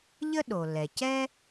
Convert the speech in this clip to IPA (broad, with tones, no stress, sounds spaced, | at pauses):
ʎ ə˥ ɗ o˩ l ɛ˩ c ɛ˥